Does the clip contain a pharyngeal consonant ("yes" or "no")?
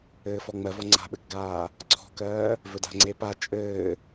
no